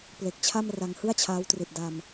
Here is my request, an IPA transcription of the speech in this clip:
ple˨˩k̚t͡ɕʰa˥˩m ra˧ŋhɯ˥˩a̯t͡ɕʰaː˦˥w tri˨˩t̚da˧m

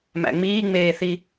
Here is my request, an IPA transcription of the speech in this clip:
mæ̰ŋ͡miːŋ͡meːθi

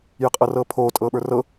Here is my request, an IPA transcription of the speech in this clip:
jəqʼɤrɤːpʰoː tʼɤːɓə˞rɤ

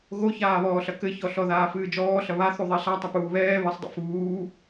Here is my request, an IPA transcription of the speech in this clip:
ɣoçaːβɔːɬɐ kɘçɔɬɔðaː fɨːd͡ʒɔːɬɐ βaθu ðˤeɬa tˤapuːβɛː βɘsˤdˤḭ fuː

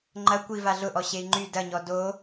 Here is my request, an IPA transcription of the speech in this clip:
ŋ͡ǃɐ kʷiva ɮʊʔɔ ɕei̯ŋ͡ǃy dɐɲɔ do

